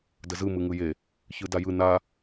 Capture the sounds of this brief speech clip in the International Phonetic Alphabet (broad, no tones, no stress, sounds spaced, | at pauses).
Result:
d ə z ɯ m ɯ ŋ ɯ j e | ç ɯ d a j ɯ n a